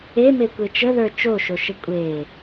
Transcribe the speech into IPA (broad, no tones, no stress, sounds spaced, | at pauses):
e m e kʷ e t͡ʃ ə ð ə˞ t͡ʃ o ʃ o ʃ ə kʷʼ e